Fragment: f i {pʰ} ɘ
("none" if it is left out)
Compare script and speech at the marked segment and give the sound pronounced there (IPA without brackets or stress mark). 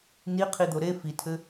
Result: tʰ